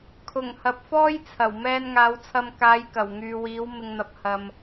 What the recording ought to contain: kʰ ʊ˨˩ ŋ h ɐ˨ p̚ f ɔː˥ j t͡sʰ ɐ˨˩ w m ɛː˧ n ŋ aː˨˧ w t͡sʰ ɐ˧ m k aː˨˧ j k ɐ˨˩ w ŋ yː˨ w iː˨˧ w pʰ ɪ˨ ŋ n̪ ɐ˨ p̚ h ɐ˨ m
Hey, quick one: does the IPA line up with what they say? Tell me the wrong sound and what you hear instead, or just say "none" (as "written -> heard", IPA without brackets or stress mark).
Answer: pʰ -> m